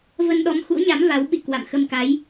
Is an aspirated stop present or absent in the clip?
absent